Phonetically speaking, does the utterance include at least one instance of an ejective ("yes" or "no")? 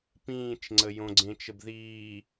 no